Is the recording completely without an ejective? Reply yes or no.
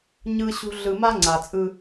no